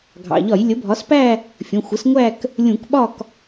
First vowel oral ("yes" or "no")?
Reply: yes